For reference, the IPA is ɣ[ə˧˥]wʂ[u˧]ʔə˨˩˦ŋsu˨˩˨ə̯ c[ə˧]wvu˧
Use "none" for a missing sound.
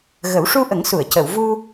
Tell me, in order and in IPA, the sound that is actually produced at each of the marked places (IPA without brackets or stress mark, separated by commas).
ə˨˩˦, u˧, ə˨˩˨